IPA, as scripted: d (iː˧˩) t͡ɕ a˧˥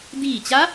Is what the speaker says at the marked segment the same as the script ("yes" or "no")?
yes